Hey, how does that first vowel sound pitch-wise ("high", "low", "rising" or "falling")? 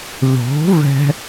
rising